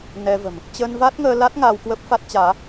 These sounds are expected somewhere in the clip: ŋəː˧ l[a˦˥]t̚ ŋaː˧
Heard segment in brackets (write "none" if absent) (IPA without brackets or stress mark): a˦˥